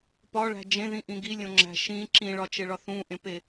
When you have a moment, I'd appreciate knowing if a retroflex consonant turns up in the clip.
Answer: yes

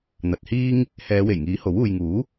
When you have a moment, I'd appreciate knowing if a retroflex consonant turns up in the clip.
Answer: no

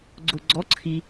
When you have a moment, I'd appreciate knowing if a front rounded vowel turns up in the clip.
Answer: no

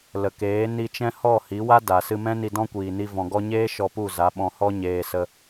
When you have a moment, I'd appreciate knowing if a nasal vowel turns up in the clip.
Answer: yes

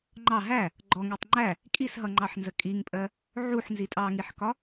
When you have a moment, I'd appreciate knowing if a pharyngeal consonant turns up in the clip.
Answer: yes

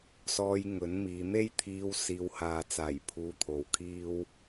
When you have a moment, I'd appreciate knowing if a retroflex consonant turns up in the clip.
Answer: no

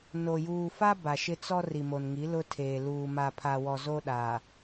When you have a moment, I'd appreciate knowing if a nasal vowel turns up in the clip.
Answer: no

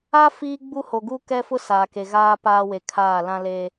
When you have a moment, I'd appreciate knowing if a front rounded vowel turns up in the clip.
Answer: no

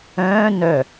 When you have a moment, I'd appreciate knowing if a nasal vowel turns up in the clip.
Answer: yes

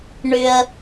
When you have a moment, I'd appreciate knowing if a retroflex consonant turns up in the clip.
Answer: yes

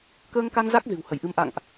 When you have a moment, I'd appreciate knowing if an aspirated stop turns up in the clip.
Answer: no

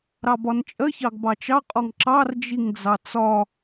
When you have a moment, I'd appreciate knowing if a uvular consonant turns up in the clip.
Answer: yes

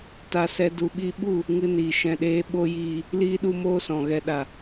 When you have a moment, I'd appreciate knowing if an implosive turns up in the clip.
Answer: yes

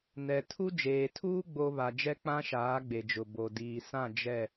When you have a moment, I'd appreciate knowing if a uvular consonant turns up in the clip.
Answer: no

